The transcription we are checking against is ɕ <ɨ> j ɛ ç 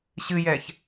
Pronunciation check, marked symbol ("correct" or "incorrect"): correct